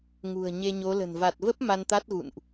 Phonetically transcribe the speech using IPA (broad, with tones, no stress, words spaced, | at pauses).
ŋṳ˨˩ə̯ ɲe˧ɲo˨˦lə̤˨˩n va˨˩t̚və˦˥p̚ ma˧nt̪a˦˥t̚ɣṵ˧˨nʔ